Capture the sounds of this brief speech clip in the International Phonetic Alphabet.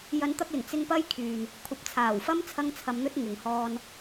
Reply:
j ɐ˨˧ n t̪ ɐ˧ k̚ l ɪ˨˩ ŋ t͡s ɪ˥ ŋ p ɐ˥ j kʰ yː˨ n | kʷʰ ɐ˨˥ p̚ t͡sʰ aː˨˩ w f ɐ˥ m t͡sʰ ɐ˥ ŋ t͡sʰ ɐ˧ m n̪ ɵ˥ t̚ ŋ ɪ˨ ŋ h ɔː˧ n

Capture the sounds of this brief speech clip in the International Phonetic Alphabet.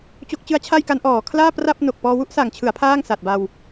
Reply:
t͡ɕ o˦˥ k̚ t͡ɕ ɯ˦˥ a̯ t͡ɕʰ a˥˩ j k a˦˥ n ʔ ɔː˩˦ kʰ l aː˥˩ p r a˥˩ p̚ n o˨˩ k̚ p ɔː˧ w u˥˩ ʔ s a˨˩ ŋ t͡ɕʰ ɯ˩˦ a̯ pʰ aː˥˩ ŋ s a˨˩ t̚ b a˧ w

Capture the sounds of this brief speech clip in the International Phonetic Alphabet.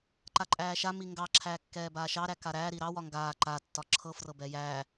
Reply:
ǃ a ǃʼ æː ʃ a m i ŋ ɡ ɑ ǁʰ æː kː ɛː b aː ʃ ɑ ɾ æ k a ɾ æː ɾ i ɾ ɑ w ɒ ŋ ɡ aː ǃ a tː ɒ ǁʰ ɤ f r ɤ b ɛ j æ

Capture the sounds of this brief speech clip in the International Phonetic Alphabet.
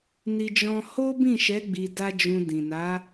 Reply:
n i˧ d͡ʒ ɔ̃˧ h o˦ b ĩ˦˨ ʃ ɛ˨˦ ɡ͡b i˧ d a˦ d͡ʒ ũ˧ d ĩ˨ n a˨˦

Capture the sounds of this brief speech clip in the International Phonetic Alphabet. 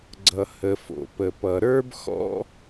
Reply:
ɡ͡ǀ ʌ˩ h ə˩ f o̰˩ p ə˩ p ʌ˩ ɾ ə˞˥ b x ɔ̰˥

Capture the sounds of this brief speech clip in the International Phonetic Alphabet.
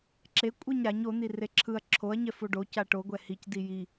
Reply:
ǁ e kʷʼ ɯ ɲ ɾ a ɲ o n̪ i r e ǁʰ ɯ ɐ̯ ǁʰ o ɐ̯ ɲ ɛ f o ɖ o c a ʈ o ɡʷ ɛ h i c d i j i

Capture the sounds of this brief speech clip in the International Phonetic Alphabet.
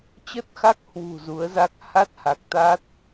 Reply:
t͡ɕ ə˦˥ t̚ x a˦˥ k̚ h w ṳ˨˩ z u˨˦ ə̯ z a˦˥ k̚ h a˦˥ t̚ h a˨˩ k̚ t̪ a˦˥ t̚

